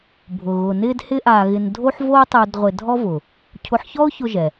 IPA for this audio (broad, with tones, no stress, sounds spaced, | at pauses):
bʱ ʊ˧ ɣ ʊ˧ n ɪː˥ d h ɪ˥ ʔ aː˧ ɣ ɪ˧ n dʱ o˥ ħ v oː˥ tˤ u˧ d ʁʷ ɪ˧ dʱ ɔ˥ v ʊ˩ | cʰ ʊ˧ ħ ç ɔ˥ ʊ̯ ç ʊ˧ ʒ ɛ˩